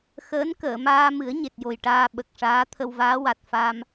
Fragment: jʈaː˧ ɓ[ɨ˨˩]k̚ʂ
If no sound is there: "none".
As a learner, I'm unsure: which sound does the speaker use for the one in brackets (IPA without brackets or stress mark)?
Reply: ə˨˩